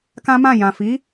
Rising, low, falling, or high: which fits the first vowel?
high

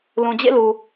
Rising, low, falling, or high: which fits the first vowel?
low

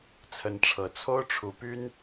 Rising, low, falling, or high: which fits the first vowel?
rising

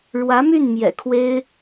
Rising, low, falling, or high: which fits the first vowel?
rising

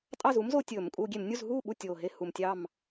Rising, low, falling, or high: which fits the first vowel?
falling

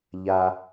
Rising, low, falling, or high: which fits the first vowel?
low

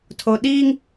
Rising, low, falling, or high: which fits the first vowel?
low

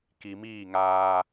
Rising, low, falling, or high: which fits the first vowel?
low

